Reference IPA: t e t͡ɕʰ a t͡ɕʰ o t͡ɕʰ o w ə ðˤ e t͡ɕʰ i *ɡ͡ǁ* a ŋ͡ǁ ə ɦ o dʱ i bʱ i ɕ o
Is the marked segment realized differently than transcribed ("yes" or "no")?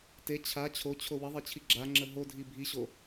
no